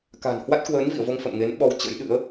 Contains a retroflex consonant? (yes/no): no